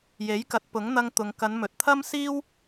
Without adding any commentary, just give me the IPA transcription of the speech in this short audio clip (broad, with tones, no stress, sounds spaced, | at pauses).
j e˨˥ j k ɐ˨˥ t̚ p ʊ˨˥ ŋ n̪ ɐ˧ ŋ t̪ ʊ˨ ŋ k ɐ˨˧ n m ɵ˨ t̚ t̪ʰ ɐ˥ m s iː˥ w